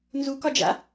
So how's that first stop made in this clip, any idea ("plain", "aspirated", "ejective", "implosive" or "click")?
plain